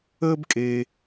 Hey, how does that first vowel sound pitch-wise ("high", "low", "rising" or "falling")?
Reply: high